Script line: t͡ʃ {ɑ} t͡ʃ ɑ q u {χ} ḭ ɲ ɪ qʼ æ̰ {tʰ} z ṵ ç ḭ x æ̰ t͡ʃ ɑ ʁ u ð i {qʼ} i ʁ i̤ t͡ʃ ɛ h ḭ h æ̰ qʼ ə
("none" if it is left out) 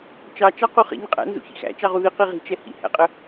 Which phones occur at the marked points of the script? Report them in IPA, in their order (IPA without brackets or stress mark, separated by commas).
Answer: ɑ, χ, n, q